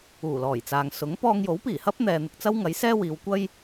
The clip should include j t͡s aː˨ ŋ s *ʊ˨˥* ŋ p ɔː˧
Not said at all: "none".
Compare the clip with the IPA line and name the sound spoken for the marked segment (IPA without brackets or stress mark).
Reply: ʊ˨˥